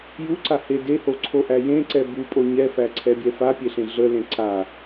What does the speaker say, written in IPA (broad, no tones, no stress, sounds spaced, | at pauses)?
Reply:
j u ǀ a h e d e h o ǀʰ o ʔ æ j ẽ ǀ ɛ b u pʼ o ɲ ɛ f æ ǀʰ ɛ bʲ ɛ f a pʲ e ɬ ẽ ɮ ə l ẽ ǀ a